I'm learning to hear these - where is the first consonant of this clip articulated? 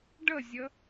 retroflex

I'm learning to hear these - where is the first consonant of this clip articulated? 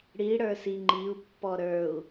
retroflex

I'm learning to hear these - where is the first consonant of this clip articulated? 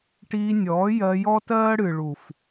retroflex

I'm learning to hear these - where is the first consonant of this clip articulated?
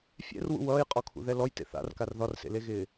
lips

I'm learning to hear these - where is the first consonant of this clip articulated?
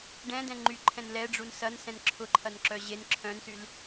retroflex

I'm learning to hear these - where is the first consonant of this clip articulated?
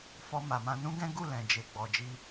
lips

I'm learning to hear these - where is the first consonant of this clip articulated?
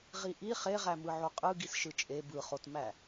uvula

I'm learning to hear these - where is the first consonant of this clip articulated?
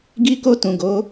velum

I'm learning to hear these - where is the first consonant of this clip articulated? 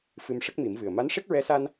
lips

